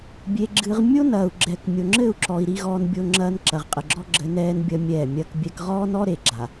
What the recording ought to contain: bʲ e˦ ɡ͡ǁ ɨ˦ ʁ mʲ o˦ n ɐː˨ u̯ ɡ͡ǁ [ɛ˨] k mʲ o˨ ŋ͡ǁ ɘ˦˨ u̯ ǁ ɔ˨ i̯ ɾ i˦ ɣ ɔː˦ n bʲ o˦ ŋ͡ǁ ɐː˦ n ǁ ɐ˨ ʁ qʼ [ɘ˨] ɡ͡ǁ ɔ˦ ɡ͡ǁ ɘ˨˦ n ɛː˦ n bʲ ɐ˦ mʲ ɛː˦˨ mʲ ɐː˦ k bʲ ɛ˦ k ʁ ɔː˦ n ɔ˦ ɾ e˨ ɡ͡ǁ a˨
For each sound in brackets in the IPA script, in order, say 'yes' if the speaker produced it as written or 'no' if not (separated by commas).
yes, yes